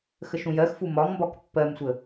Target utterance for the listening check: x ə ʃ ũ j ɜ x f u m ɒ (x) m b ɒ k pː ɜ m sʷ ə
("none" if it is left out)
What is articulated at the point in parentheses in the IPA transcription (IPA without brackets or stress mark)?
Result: ŋ